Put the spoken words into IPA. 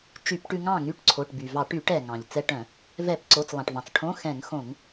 t͡ʃy˧˩˧pʈʉ˧ŋɑ̃˥˨ŋy˧˥˧ʈ ǀʰo˩˧˩ʈby˩vɑ˧˩˧ ʈy˧˩˧ʈɛ˩ ŋɑ̃˩ʎ t͡sɛ˧ʈœ̃˧˩˧ | vɛ˧˩˧pǀo˩˧˩t͡slˠɑ̃˩ʈvɑ̃˩t͡s ʈʰõ˧˥˧ xɛ̃˧˩˧ŋxõ˧˩˧ŋ

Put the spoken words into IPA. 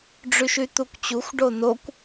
ɖ͡ʐyʃyt̪ukʷt͡ɕuxʷ ɖonokʷ

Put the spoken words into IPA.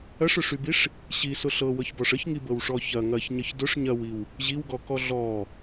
ɐʂʊʂybiʂ | ɕisʊ ɬɤwɤçbɔʂ əçŋibɤwʂɔ çɐ ŋɐçɲəç dʊʂ ɲɐwiw | ʑiwɡɔkɔ ɮɔ

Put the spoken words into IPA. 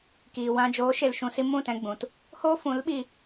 kiː˨wã˧ d͡ʒoː˨˦ ʃe˨lʃũ˨si˧ mũ˦˨tɛ̃˧ɡ͡bũ˨t | hoː˦fũ˨˦lɓi˧

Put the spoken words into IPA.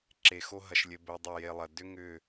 ǁe˨xo˧ɦɐ˨ʃlʲɘ˨ bɘ˨ dˤɘ˦˨je˧lˠɐ˨ dʏ˦ŋʏ˦˨

